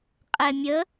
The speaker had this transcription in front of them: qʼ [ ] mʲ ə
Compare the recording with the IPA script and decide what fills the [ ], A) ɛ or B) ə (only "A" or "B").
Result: A